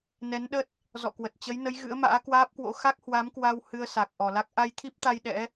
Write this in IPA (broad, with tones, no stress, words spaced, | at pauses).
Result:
nɛ˨˦nɗə˦˥t̚ | zɔ̰˧˨kwə˨˩t̚ t͡ɕə˨˦jnə˨˦j ɣɨ̰˧˥ə̯ma̰ː˧˥kwaː˦˥p̚kwo̰˧˥ xa˦˥k̚hwa˨˦mkwa˧w hɨ˧ə̯sa˨˩k̚ ʔɔ˨˩la˦˥k̚ ʔa˧jt̪ʰi˦˥p̚t̪a˧j ɗɛ̰˧˥